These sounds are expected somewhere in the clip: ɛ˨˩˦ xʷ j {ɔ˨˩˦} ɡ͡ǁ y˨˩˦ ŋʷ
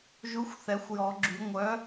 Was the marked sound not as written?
no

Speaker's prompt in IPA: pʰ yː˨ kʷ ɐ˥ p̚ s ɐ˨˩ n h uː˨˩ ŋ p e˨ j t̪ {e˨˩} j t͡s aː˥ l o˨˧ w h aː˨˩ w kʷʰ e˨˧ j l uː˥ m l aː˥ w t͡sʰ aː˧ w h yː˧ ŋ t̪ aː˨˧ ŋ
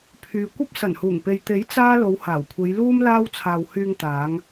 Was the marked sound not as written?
yes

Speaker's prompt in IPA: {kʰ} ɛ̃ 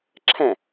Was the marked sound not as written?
yes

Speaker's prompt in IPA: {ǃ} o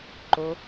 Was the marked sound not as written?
no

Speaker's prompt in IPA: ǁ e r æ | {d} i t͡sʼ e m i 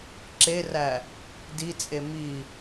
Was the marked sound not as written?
no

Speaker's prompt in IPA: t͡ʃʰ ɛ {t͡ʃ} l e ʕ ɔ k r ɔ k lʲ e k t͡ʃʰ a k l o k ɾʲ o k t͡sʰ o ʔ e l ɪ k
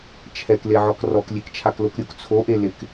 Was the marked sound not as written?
yes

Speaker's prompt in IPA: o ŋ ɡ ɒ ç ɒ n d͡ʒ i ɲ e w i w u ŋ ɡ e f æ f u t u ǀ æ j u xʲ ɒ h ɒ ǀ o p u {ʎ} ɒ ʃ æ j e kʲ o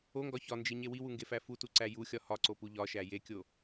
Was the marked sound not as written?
no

